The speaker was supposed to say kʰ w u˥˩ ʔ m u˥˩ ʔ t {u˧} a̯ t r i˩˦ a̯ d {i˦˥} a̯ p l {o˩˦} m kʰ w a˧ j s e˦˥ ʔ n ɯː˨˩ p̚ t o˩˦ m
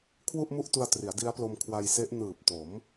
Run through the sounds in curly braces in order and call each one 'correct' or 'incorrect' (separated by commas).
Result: correct, correct, incorrect